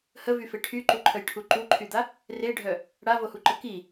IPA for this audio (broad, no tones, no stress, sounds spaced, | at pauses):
h ə v y f e ʈʰ y ǃ u ǃʰ ə j ʈʰ u ǃ u ǃʰ y d̪ a | r e ɖʱ œ | ɽ a v o h u ǃ ə k i